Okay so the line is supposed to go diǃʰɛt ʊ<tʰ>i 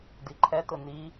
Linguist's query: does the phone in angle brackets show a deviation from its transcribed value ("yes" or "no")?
yes